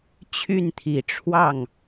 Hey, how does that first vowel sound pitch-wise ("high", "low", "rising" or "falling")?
falling